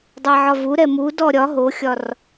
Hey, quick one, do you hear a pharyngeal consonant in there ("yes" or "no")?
yes